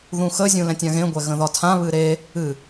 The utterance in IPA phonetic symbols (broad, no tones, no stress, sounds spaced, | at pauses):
ð ũ x ə zʲ ũ l ɛ̃ tʲ ã ɣ ẽ ɡʷ ɛ ɣ ə̃ ð ɒ tʰ ã β ɨ ɾ e | ɨ